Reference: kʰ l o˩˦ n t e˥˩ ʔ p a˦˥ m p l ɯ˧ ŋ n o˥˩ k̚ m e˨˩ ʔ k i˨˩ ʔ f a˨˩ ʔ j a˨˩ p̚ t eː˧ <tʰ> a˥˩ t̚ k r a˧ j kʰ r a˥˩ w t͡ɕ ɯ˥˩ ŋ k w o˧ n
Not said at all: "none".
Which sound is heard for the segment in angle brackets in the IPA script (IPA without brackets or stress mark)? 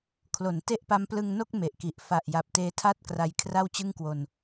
tʰ